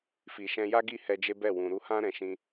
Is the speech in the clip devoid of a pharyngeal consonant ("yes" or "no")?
yes